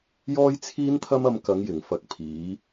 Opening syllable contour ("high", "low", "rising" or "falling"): high